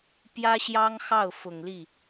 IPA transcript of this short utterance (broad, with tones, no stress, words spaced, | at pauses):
pjä˥ɕjɑ˥ŋxɑ˥˩ʊ̯ fʊ˨˩ŋli˥˩